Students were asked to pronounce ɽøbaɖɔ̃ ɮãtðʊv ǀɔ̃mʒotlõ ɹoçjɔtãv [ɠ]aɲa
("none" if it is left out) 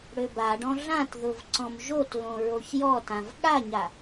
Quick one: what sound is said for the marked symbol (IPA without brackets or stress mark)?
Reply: ɠ